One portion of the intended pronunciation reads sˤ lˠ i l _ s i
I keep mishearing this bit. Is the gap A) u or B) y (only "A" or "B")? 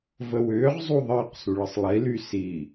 B